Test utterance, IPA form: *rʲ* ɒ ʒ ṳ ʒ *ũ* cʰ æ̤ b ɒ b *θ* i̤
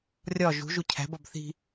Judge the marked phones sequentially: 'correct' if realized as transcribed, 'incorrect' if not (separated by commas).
correct, incorrect, correct